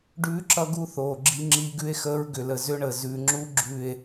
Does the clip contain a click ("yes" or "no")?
yes